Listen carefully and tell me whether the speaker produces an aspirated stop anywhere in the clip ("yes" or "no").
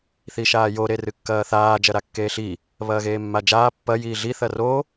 no